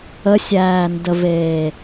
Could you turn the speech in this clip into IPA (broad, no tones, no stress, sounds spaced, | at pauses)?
ə sʲ æː n d ə v eː